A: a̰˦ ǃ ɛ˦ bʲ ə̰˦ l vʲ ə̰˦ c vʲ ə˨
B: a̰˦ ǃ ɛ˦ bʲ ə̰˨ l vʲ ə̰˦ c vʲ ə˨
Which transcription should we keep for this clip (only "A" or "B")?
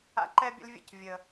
A